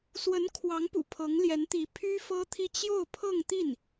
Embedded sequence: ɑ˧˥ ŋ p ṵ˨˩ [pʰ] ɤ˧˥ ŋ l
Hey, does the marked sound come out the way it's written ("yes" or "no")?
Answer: yes